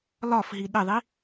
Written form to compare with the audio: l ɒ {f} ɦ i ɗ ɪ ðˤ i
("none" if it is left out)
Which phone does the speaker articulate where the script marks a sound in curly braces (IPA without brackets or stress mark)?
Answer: f